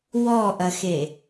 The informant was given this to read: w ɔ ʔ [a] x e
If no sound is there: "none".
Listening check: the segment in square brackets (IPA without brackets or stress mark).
ɐ